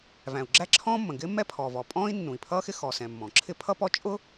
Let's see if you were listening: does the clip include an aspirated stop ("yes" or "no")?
yes